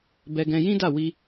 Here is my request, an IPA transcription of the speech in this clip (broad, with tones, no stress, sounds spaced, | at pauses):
b ɛ˧ ɡ ɛ̃˧ j ĩ˦ d a˦˨ w i˧